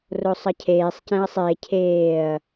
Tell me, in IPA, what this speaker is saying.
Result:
r o sˤ ʌ cʰ eː sˤ c ɛ̃ ɐ̯ sˤ e cʰ eː ɐ̯

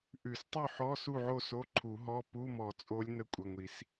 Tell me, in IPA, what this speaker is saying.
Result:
ʔ ʉ˨˩˦ s tˤ ʉ˥˨ ħ ɔ˧˥˧ s u˥˨ ʕ o˥˨ s o˧˥˧ ǃʰ u˨˩˦ ɦ ɔ˧˥˧ p u˧˥˧ m ɔ˨˩˦ t͡sʼ o˧˥ lʲ n ə˧˥ kʷʼ ə˩˧˩ ŋʷ i˨˩˦ s

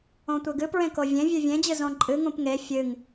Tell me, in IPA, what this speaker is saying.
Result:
õ tʷ e ɡ ɨ p ɹ ẽ k o vʲ ẽ vʲ ʉ vʲ ẽ d͡ʑ ɨ z õ ǃʼ ɨ ŋ ũ p ŋ e fʲ ɨ ŋ

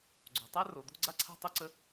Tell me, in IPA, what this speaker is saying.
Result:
ɡ͡ǀ o̤˩ tˤ a˥ r o˩ d̪ o̤˥ ɡ͡ǀ a˥ ǀʰ a̤˥ tˤ o˥ ǀ ə˥

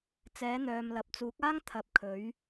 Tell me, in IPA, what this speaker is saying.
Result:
t͡s ɛː˨˥ n̪ œː˨ m l ɐ˨ p̚ t͡s uː˨˥ k̚ aː˥ ŋ t̪ʰ ɐ˨ p̚ kʰ ɵ˨˥ ɥ

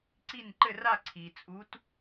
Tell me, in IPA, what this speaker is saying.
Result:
ǀ i˥˧ n ǃ ɘ˥˧ r a˥˧ ǀʰ i˩ t͡sʼ u˧˥ t

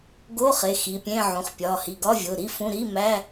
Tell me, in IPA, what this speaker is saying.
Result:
ɡ o˧˥˧ χ e˩˧˩ x i˩˧˩ pʲ ẽ˧˥˧ ʕ ũ˩˧˩ χ pʲ ɒ˩˧˩ h i˩˧˩ ɡ ɒ˧˥˧ vʲ o˩˧˩ ɾ i˧˥˧ f ũ˧˥˧ ɾ i˧˥˧ m æ˧˥˧

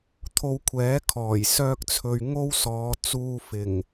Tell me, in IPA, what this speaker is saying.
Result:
t̪ʰ o˧ w kʷʰ ɛː˨˥ kʰ ɔː˨˩ j s œː˥ k̚ t͡sʰ ɵ˧ ɥ ŋ o˥ w s ɔː˨˧ t͡s uː˧ f ɪ˨˩ ŋ

